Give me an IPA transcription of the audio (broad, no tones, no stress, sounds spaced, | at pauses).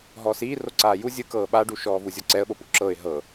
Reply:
ɦ ɔː s iː r o ǀ aː j u zʲ ɯ k ɤː ɓ a ɖ u ʃ ɔː v u zʲ ɔ ǀ ɛ ə̯ ɓ o p u ǁ ɤ ɪ̯ ɦ ɤ